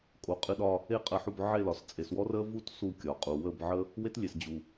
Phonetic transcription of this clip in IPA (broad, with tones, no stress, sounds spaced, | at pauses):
kʼ o˨ qʼ ɨ˧ ɗ ɒ˧ | e˦˨ qʼ ə˧ ħ u˧ b ʕ e˦˨ l ɒ˨ s t͡sʼ e˨ s w ɔ˦ r ə˦ v u˦ t s u˦˨ kʲ ɒ˨ qʼ u˨ w ə˦˨ b ʕ ə˦ | w e˦ t lʲ e˨ s d͡ʑ u˨